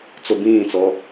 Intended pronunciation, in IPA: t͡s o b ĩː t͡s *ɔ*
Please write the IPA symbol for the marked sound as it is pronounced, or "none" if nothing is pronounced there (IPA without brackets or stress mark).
ɔ